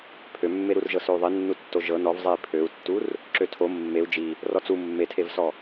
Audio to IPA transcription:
pʰ ø mː e ɾ u r ʒ ɤ s ø u̯ ðˤ i nː u tː o ʒ ɤ n ɔ v zˤ e i̯ pʰ ø u̯ tː u r | ǁ ø tʰ o mː e u̯ d͡ʒ i | r ɔ t͡s u mː e tʰ e v s ɔ

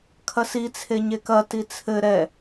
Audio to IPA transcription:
kʰ ɐ s i t͡sʰ e ɲ e k ɐ t i t͡sʰ ɘ ɾ ɛ

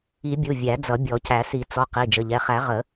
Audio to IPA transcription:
i˨˩˦ bʲ u˩˧˩ vʲ æ˨˩˦ d͡z ʌ˨˩˦ bʲ ɔ˨˩˦ c æ˨˩˦ s i˨˩˦ t͡s ɔ˩˧˩ q i˩˧˩ d͡ʒ ə˩˧˩ ʎ ɛ˩˧˩ χ æ˨˩˦ ʁ ə˨˩˦

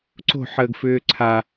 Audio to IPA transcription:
ǀ o̤ ħ əː ɡ f ʏː ǀʰ a

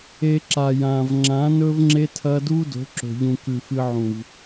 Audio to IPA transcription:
e˧ ǁ a˨ j ãː˨ v ŋ͡ǁ ã˨˦ n ɵː˦ v ŋ͡ǁ e˦ tʰ ɐː˦ d uː˦ d o̤˨˦ ǁ o̤˨ ʎ ũ˨ k ʉ˨ f ɨ˧ ʕ ũ˨ v

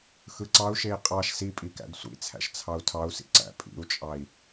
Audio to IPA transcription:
x ɯ ǀ ɑ u̯ ʃ e i̯ qʼ ɑ ʃ s i pʼ i k æ̰ d sʷ ḭ t͡sʰ æ̰ ʃ t͡sʰ ɑ u̯ tʰ ɑ u̯ s ḭ ǀ æ̰ pʼ ḭ u̯ t͡ʃʼ ɑ i̯

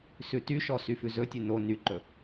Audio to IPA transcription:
s ʉ t y ʃ ɔ s y f ʉ z ɵ tʲ ʉ n o n y ǃ ɵ

